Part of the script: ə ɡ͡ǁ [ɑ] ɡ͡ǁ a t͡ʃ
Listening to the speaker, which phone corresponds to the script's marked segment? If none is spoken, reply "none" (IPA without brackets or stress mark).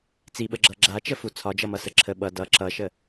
ʌ